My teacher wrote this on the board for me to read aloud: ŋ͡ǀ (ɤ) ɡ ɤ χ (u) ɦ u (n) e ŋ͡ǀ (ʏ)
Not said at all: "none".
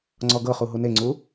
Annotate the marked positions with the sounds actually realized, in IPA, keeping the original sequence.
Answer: ɔ, u, n, u

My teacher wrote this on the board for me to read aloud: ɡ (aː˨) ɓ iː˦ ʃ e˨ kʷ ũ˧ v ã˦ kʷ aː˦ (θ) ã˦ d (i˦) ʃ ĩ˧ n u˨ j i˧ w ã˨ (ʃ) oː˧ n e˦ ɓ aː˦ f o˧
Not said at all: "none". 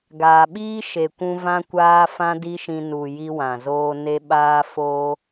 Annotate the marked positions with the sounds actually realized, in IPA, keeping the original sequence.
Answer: aː˨, f, i˦, z

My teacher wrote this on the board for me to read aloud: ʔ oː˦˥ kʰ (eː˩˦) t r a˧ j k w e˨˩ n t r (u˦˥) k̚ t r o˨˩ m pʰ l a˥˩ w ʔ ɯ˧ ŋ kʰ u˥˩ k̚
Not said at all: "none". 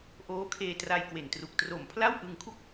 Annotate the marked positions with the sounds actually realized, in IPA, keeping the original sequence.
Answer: eː˧, u˨˩

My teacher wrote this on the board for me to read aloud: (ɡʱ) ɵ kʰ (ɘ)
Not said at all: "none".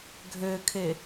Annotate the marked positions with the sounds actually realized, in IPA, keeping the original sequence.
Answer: ɡʱ, ɘ

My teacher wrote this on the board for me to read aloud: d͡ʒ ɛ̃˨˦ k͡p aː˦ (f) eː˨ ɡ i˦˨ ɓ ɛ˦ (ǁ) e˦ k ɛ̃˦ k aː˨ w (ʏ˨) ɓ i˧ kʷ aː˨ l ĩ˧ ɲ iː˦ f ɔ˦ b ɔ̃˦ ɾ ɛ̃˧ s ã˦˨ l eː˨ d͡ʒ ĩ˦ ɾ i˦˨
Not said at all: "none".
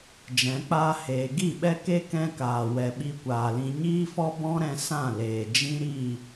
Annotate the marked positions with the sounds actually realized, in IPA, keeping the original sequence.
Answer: h, k, ɛ˨

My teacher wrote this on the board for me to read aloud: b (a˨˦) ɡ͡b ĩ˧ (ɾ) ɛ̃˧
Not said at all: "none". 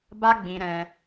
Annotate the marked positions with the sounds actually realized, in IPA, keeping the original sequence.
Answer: a˦, ɾ

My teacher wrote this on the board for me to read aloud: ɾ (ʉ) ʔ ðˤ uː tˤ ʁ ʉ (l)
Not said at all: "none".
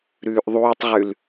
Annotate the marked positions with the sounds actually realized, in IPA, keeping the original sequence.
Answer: ʉː, l

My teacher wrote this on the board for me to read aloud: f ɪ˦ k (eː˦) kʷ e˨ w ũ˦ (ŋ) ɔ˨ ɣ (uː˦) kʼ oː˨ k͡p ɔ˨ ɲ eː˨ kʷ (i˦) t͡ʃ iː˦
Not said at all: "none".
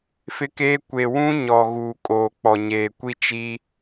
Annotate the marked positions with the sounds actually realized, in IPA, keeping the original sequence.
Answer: eː˦, ɲ, uː˨, i˦

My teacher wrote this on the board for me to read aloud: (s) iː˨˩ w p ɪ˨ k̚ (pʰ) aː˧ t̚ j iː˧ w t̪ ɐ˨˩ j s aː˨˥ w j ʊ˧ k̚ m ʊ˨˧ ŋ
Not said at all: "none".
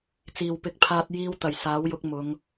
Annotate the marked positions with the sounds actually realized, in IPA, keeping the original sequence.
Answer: t͡s, pʰ

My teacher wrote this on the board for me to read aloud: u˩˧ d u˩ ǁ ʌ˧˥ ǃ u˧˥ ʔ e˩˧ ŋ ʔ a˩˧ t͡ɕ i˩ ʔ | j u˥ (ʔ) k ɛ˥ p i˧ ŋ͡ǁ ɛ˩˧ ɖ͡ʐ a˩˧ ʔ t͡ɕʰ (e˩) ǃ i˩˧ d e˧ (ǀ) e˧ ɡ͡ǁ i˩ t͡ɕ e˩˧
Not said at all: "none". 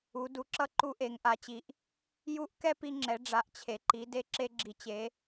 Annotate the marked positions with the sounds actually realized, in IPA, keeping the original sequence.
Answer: ʔ, e˩, ǁ

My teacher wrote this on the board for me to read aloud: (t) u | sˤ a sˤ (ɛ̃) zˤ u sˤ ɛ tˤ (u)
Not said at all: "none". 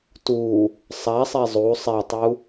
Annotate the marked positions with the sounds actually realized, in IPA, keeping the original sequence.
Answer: t, ɛ, u

